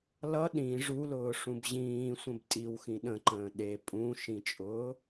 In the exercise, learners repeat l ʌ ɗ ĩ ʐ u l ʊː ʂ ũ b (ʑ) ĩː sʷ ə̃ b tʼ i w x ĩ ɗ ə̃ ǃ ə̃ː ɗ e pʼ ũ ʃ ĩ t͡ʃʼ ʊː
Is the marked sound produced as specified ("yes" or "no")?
yes